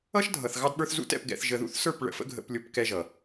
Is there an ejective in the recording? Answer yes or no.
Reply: no